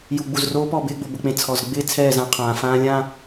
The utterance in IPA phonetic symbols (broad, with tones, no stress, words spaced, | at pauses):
ju˨ɡ͡bu˨zroː˦pɔ˦˨ bɪː˦˨ɡ͡bo˨bʊ˨k͡pẽ˨ t͡sʰɔ˨z ɡ͡bɪː˦ t͡sʰɛː˦˨zã˨˦ qʰãː˨fãː˦lʲã˦˨